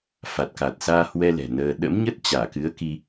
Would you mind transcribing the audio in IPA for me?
f a˨˩ t̚ k a˨˩ t̚ s aː˧ h w ɛ˧ l ɛ̤˨˩ n əː˧ ɗ ə̰˧˥ m ɲ ə˦˥ t̚ t͡ɕ aː˧˩ k ɨ˨˦ ə̯ k i˧

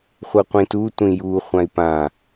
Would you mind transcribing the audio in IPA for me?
χʷ ɤ qʷ ĩ t u tʷ ĩ j u χʷ ã i̯ p ã

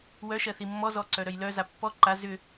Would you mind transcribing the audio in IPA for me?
w œ ʃ ɜ θ i mː ɔ z ɔ ǀ œ ɾ œ j l œ z a pː ɔ ǃ a z ʏ

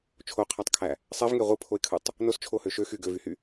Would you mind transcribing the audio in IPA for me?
t͡ʃʰ o qʰ æ tˤ kʰ æ | sˤ e v ŋ e ʁʷ ɯ pʰ o ɪ̯ kʰ ɯ tˤ | n o s t͡ʃʰ o h ø ʃ ø x y ɡ ø v y h y

